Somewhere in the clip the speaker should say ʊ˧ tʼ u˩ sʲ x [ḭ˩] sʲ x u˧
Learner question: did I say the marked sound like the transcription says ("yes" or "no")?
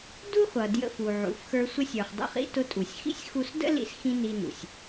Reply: no